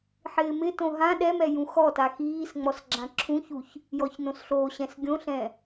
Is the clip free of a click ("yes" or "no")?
no